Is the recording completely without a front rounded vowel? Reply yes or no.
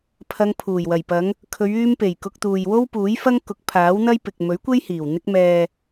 no